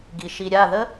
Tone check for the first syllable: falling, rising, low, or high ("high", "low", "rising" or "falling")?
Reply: low